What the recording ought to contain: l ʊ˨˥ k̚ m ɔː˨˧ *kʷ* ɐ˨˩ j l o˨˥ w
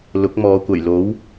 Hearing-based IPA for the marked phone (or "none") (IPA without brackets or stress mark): kʷ